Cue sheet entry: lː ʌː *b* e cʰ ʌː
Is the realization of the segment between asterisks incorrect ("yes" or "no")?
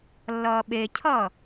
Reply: yes